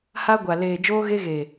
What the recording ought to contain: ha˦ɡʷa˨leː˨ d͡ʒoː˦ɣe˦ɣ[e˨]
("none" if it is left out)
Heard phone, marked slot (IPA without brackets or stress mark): e˨